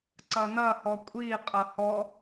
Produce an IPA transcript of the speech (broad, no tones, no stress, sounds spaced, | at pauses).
ǀ ɐ n ɐ h ɔ kʷʼ i qʼ ɐ h ɔ